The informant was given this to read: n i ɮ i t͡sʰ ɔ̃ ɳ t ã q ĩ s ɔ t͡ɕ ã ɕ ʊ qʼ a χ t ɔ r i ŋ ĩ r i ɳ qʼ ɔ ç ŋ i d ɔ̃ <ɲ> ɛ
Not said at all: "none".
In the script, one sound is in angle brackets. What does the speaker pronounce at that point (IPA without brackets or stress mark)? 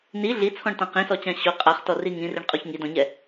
ɲ